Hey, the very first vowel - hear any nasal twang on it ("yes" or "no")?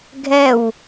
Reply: no